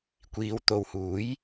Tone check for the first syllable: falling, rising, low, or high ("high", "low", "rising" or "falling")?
low